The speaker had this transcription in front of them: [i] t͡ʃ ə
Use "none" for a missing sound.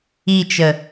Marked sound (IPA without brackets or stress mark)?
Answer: i